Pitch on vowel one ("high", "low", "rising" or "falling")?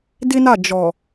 high